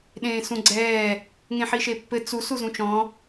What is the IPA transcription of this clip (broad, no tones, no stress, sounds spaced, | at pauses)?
ɗ ẽː s ũ ɡ͡ǀ ɛː | ŋ ẽ ħ i ʃ e pː ɘ t͡s u s u z ũ t͡ʃ ɔ̃